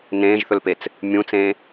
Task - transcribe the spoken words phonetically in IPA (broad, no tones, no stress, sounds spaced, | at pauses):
n ẽː ʒ θ ɵ l p e t͡s | mʲ ũ t͡s ẽː